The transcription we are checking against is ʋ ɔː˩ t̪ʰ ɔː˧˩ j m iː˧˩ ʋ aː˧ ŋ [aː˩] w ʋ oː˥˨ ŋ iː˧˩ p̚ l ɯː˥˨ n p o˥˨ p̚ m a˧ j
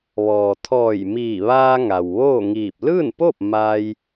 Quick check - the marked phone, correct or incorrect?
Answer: incorrect